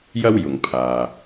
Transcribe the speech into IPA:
j ɐ˥ w j ʊ˨ ŋ pʰ aː˨

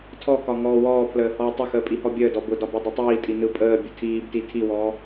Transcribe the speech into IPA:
tʰ ɔ k ɒ ŋ ɔː w ɔː pʰ l əː h ɔː tˤ ə x əː pʼ i h ɔ bʲ əː d ɔ b ʊ d ɒ b ɔ dˤ ʊ tˤ iː tʼ i n ɯ pʼ əː bʲ ʊ tʰ iː b t i tʰ i w ɔː

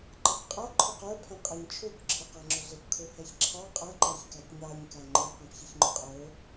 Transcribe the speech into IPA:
ǃ ʌ k qʼ ʌ ǃʰ ʊ q ə˞ pʰ ɛ̃ qʼ ɛ ɲ t͡ʃʰ u k ǁʰ ɪ q æ ŋ͡ǁ ʊ ɮ ɪ p kʰ u h ɛ ç ǁʰ ɑ qʼ ʌ ǃ æ ç k æ t ɲ ɑ ɲ k æ ŋ͡ǃ i q ɛ̃ p ç i ç ŋ͡ǃ ʊ qʼ ə˞

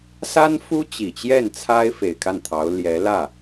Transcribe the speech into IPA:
s a˥ n f u˥ t͡ɕ i˨˩ t͡ɕ j ɛ˥˩ n t͡sʰ a˥ ɪ̯ f e˨˩ ɪ̯ kʰ a˥˩ n t̪ʰ ɑ˧˥ ʊ̯ l j ɛ˧˥ l ä˥˩

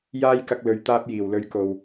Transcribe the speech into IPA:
j aː˥ j k ɐ˧ k̚ l ɵ˨ ɥ t̪ aː˧ p̚ j iː˨˩ w l ɵ˨˧ ɥ k o˨ w

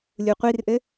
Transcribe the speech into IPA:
lʲ u qʷ i r ʔ ɘ

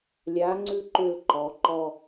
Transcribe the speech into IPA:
lʲ a˩˥ ŋ͡ǀ ʉ˦˨ ǃ ʏ˦˨ l ǃ ɔ˩˧ ǃ ɔ˦˨

